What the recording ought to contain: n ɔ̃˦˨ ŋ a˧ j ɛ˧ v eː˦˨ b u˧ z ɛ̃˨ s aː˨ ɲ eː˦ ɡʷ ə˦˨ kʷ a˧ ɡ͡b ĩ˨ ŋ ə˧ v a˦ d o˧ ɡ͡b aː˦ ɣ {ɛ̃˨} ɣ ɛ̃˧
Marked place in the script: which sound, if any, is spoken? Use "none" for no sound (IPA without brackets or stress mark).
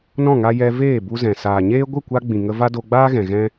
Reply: ɛ̃˨